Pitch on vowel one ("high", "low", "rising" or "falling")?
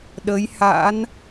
rising